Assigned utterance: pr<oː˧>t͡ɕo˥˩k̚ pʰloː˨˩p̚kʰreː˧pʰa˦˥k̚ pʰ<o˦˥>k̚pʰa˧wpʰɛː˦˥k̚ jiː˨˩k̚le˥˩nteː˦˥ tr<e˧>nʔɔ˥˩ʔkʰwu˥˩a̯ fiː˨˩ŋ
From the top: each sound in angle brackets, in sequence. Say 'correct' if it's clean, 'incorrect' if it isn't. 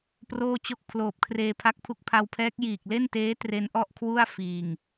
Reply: incorrect: oː˥˩, incorrect: u˦˥, incorrect: e˦˥

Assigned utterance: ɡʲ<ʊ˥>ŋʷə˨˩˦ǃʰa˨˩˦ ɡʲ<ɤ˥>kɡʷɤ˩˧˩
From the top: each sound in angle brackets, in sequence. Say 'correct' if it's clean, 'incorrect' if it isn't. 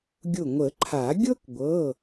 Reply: incorrect: ʊ˧˩, correct

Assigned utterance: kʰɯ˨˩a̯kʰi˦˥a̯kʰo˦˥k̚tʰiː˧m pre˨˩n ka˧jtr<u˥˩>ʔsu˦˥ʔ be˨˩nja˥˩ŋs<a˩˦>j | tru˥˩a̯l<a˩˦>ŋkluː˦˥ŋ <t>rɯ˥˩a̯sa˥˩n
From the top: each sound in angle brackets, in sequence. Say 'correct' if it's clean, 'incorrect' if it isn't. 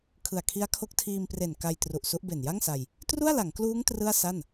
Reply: incorrect: u˨˩, incorrect: a˧, correct, correct

